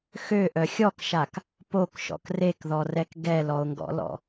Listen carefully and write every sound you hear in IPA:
x ø ʔ œ xʲ ɔ k ʃ a k | p o k ʃ ɔ̰ k r e k ð ɔ r ɛ k ɡ ɛ l ɔ o̯ ŋ ɡ ɔ̰ l ɔ̰

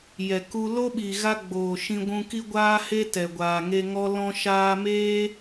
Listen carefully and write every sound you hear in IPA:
j ɛ˨ k u˧ l o˦ ɓ i˨ ɣ a˧ ɡ͡b oː˨ ʃ ĩ˧ ɡʷ ũ˧ k i˦ ɡʷ aː˦ h e˦ t ɛ˨ ɡʷ aː˨ ŋ e˧ ŋ ɔ˦ l ɔ̃˧ ʃ aː˧ m eː˦

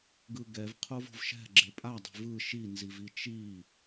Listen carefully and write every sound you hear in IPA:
ɡ ɯ ɡ ɛ v qʰ o v o̤ v ʃ ɛ̤ ɡ͡ǁ e pʼ a dˤ e̤ v ɯ ʃ i n z i v i t͡ʃ i

